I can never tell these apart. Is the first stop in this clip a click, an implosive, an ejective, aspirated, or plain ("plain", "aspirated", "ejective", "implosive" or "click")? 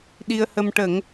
implosive